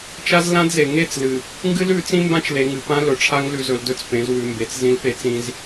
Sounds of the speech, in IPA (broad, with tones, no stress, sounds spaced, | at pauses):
t͡ʃ a˦ z l ã˦ d z e˨ ŋ e˦˨ t͡s l ɨ˨ | ŋ ɡ ɨ˦ l ʉ˨˦ t͡s ĩ˦ m b ã˦ t͡ʃ l e˨ ŋ ɨ˨ p ã˦ l ɵ˨ ʈ͡ʂʰ a˦ ŋ l ʉ˨ z ɵ˨ l d ɵ˦ t͡s p ẽ˨˦ z w ʉ˨ m b e˨ t͡s z ĩ˦ l p e˦ t͡s ĩ˦ z